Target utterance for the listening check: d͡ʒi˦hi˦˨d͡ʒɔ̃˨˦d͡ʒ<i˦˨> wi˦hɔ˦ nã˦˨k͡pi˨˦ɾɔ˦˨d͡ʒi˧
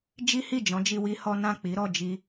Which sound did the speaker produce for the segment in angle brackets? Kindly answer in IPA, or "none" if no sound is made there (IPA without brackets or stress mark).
i˧